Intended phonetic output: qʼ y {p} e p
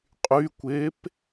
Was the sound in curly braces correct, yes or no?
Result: no